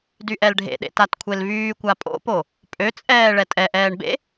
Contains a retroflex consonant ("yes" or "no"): yes